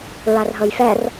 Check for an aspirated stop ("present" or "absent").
absent